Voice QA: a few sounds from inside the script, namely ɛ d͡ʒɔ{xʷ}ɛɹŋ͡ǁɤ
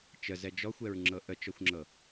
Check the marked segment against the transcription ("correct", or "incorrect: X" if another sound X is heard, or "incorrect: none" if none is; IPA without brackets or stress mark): correct